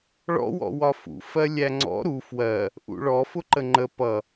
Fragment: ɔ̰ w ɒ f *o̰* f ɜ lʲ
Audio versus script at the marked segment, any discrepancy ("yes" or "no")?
yes